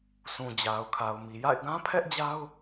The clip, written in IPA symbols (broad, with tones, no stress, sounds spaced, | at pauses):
sʰ ũ˨ d͡ʑ a˨ ʊ̯ kʰ a˨ ʊ̯ m i˨ j a̰˦˨ ɪ̯ ɡ ã˦ pʰ ɛ˦ ʔ d͡ʑ a˦ ʊ̯